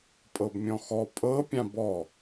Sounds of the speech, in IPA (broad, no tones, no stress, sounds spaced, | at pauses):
pʼ ɤ b mʲ ɔ̃ x ɔ pʼ ɤ pʲ ã b ɔ